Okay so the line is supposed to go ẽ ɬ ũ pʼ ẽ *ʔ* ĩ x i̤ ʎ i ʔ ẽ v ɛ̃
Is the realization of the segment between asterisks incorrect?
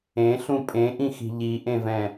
no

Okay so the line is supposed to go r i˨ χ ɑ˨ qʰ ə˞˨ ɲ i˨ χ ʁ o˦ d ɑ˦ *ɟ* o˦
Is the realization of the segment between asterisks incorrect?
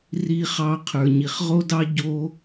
no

